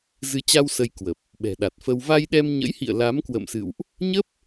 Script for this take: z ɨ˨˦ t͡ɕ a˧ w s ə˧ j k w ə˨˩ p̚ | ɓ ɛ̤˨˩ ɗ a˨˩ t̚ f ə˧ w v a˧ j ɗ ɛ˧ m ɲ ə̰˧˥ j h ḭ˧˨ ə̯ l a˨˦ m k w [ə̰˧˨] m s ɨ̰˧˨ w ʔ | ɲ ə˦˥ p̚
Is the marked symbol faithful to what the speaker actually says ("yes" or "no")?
yes